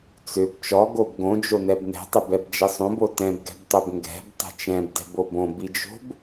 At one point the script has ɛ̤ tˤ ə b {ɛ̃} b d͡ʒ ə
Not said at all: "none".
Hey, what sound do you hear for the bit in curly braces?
ɛ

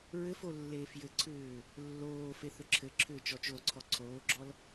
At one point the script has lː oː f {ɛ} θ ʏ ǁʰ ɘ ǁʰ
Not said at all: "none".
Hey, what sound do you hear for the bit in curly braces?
e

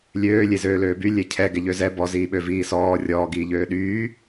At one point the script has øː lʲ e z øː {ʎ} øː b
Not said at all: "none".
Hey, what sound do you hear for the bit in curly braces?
l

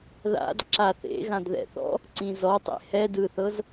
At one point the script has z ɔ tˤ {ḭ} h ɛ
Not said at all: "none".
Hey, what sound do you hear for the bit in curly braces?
ḛ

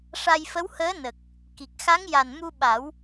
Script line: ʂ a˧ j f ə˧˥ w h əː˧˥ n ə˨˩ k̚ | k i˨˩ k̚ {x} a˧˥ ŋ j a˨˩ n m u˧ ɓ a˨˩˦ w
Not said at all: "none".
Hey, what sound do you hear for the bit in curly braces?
x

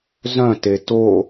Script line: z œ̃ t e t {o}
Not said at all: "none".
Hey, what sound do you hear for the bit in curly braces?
o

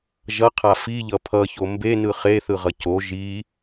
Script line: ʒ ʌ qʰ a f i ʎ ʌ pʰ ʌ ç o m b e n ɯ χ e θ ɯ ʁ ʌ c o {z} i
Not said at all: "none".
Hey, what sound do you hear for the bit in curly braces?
ʒ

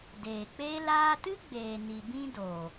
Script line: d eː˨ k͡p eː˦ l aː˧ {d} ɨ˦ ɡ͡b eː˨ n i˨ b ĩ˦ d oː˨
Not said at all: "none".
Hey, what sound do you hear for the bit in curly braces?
t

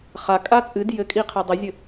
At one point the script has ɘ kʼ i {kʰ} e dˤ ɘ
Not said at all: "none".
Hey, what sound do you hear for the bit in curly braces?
qʰ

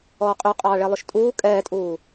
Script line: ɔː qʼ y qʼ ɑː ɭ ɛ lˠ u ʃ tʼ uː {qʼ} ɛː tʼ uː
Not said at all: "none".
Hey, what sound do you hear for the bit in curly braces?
kʼ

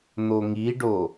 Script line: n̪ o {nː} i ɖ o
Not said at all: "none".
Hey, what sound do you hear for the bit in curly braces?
ŋ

